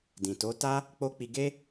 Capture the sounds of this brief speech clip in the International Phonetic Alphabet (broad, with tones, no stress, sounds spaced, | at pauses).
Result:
d ĩ˨ t o˨˦ t a˦ | k͡p o˦ k͡p i˧ ɡ e˦